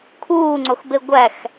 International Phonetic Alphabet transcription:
kʰuːŋ͡ǀoxbe ɡʷæx

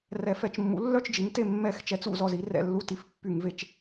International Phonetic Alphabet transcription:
rɛ˧˩˧fɛ˧˩˧t͡ʃmːṵ˩˥ lːœ˥˨t͡ʃd͡ʒi˩˥ŋte˥˨ mːɛ˧˩˧xt͡ʃɛ˩˥t͡s ṵ˧˩˧zɔ˧zi˩˥ rɛ̰˥˨lːu˥˨ ti˧˩˧fpːy˧˩˧ŋve˧t͡ʃ

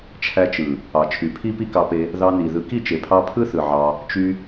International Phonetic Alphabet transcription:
t͡ʃʰæ˧t͡ʃɯ˨ | ɑ˨t͡ʃʰy˨ pʰi˦pi˦kɑ˧pe˧ | ðɑ˧ni˨ ðɯ˨ki˦˨t͡ʃe˨pʰɑ˧ pʰɯ˦θɯ˨ ʕɑ˧ | t͡ʃy˧

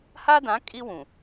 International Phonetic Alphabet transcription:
ha˦dã˨˦ kʼi˦wũ˨

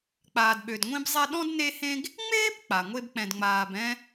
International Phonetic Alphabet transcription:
k͡paː˨dɓø˨dŋʷĩ˦bzˤɛ˦ ɗɔ̃˥dne˦hẽ˦ɡ | ŋ͡meː˥bk͡pa˩ ŋʷe˦bk͡pɛ̃˨dŋ͡maː˨bɛ̃˦

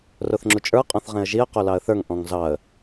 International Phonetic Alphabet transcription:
roθŋ͡ǁut͡ʃʼə˞ qʼɔ̃θʁẽə̯ʒiə̯ qolɑə̯θə˞ŋ ʔɔ̃ŋzɑə̯

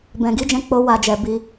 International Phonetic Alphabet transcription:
bɛ̃˨ɡi˨˦d͡ʒɛ̃˧ k͡po˦wa˧d͡ʒɛ˨ bi˧

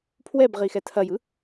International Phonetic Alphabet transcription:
pʰwɛbʁixɛ tʰɐjɯ

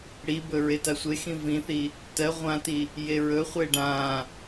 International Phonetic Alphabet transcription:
ɽibɵ ɹetasʷexĩ vĩθi | tɜ ʁʷãti | jeɹɵχʷe ɖã

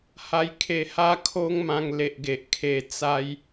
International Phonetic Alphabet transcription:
ha˧jkʰe˧ ha˦kʰo˦ŋmã˧ŋ le˨ʔɡe˨ʔkʰe˧ t͡sa˦j

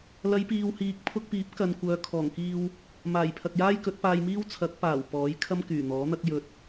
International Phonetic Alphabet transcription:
lɐ˨˧jpiː˨whiː˨k̚ pʰʊ˧k̚piː˨˥p̚kɐ˨n kʷœː˨˧kʰɔː˨˩ŋkiː˧w | maː˨˩j pʰɐ˨k̚jaː˥jkɵ˨˥t̚paː˧j miː˥wt͡sʰɐ˨˥k̚paː˨˩w pɔː˨˥jkʰɐ˥mkyː˨˩ n̪ɔː˨˥n̪ɐ˥k̚jɵ˧t̚

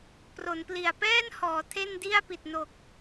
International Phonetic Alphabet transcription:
pro˩˦npli˨˩a̯ pɛː˥˩nhɔː˩˦ tʰe˥˩ndi˥˩a̯ pi˨˩t̚ no˨˩k̚

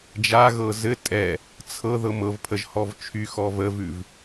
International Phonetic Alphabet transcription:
d͡ʒaɣɤ zɘ tʼɛ | t͡sʰɤ ðɤmɤvpʰəʒ hɔvt͡ʃʰyxɔ vəvʉv

